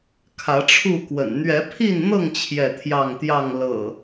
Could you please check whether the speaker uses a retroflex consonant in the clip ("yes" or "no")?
yes